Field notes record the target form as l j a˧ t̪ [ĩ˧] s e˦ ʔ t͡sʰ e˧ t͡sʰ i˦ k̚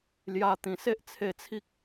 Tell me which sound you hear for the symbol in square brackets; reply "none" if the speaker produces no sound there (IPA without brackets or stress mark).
ĩ˨˩